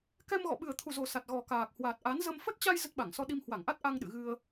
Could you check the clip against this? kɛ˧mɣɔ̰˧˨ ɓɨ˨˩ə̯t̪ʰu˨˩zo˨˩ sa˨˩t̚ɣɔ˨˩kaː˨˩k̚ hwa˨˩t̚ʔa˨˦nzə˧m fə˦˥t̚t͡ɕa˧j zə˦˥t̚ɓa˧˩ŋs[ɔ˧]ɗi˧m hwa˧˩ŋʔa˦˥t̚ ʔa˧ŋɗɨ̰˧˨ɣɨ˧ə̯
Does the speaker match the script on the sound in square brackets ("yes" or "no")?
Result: yes